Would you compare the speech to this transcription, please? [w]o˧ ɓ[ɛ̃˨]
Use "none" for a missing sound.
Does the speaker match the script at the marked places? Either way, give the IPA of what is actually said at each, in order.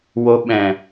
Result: w, ɛ̃˨

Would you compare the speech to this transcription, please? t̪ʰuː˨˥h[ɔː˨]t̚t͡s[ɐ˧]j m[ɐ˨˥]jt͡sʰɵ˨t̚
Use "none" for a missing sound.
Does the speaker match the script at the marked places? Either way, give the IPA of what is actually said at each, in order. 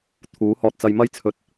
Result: ɔː˧, ɐ˧, ɐ˧

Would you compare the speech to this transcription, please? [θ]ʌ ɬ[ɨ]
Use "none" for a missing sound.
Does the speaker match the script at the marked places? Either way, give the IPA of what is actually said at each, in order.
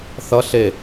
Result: θ, e

